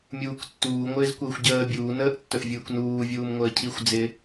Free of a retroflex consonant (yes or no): yes